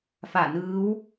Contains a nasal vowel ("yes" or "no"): no